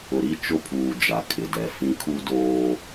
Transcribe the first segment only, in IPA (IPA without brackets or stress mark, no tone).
ʊ